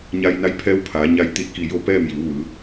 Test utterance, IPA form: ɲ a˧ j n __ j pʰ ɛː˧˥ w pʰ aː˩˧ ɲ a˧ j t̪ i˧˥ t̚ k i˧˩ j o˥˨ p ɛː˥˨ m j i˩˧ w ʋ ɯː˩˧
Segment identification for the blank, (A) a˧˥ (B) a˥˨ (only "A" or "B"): A